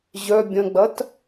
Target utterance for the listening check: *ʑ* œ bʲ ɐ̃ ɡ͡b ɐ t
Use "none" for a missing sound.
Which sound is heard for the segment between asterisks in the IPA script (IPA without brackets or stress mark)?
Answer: ʑ